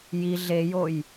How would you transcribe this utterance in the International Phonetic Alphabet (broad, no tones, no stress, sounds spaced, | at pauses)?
j i ɮ e j o j